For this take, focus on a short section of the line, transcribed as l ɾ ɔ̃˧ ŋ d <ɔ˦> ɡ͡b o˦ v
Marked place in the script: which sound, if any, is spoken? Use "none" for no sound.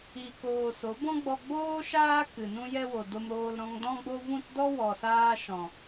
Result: ɔ̃˦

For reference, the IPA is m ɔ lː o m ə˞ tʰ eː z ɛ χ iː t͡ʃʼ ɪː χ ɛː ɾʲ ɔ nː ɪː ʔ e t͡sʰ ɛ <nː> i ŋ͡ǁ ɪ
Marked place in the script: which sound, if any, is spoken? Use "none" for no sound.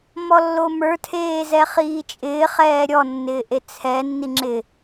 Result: nː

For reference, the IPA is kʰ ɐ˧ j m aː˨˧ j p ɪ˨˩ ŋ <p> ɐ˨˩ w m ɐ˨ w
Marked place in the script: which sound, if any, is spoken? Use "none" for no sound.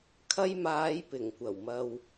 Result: kʷ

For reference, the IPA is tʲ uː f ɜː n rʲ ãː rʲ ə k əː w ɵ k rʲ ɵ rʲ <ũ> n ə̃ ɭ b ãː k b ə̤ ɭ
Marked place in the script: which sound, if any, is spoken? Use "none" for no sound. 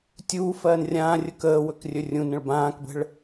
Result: ũ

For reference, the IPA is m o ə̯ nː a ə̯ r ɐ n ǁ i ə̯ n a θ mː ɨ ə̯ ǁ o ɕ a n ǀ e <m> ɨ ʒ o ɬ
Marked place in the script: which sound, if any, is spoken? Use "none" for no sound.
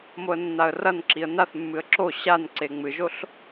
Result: ŋ͡m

